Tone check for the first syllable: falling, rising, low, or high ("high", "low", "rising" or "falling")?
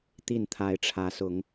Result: falling